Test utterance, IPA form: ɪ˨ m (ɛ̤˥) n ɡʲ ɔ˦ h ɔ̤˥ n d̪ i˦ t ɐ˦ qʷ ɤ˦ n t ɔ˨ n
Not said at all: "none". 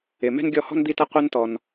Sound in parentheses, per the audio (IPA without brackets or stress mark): ɛ̤˥